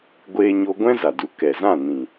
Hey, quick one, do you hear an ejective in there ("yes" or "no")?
no